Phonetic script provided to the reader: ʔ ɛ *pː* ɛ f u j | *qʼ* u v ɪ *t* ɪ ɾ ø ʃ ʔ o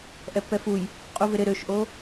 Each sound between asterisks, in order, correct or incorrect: correct, correct, incorrect: ɾ

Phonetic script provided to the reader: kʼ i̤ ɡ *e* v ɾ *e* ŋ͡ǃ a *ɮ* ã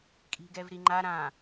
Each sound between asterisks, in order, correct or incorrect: incorrect: ɛ, incorrect: i, incorrect: ɾ

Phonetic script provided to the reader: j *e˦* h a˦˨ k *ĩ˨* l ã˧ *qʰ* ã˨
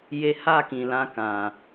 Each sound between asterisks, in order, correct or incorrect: incorrect: e˧, correct, incorrect: k

